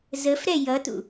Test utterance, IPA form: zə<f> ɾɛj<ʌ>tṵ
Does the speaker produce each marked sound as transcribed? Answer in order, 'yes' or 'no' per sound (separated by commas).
yes, yes